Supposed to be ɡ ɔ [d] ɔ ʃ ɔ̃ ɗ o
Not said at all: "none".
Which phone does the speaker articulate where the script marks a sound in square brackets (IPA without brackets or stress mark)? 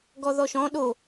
ð